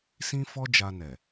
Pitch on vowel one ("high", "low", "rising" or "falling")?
high